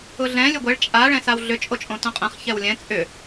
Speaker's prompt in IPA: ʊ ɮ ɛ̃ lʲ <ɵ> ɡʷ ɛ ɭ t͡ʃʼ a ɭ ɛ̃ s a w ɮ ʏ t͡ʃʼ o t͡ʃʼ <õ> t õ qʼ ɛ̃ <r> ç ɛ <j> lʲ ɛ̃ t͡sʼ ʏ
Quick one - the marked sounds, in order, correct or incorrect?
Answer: correct, correct, incorrect, incorrect

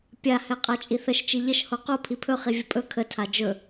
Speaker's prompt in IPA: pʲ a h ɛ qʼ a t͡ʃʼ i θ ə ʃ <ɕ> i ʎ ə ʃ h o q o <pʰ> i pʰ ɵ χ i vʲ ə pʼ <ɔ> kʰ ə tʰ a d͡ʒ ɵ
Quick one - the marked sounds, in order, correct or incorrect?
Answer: incorrect, correct, incorrect

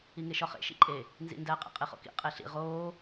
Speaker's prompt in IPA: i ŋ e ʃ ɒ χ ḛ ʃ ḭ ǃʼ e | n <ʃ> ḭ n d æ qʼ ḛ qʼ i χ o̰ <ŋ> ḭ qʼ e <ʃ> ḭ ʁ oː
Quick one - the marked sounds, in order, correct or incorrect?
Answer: incorrect, incorrect, incorrect

